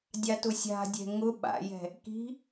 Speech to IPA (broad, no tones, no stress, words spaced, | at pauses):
dʲatʊsʲa̤dʲɛ̤ ŋʊ ɓa̰jɛ̤ | ki̤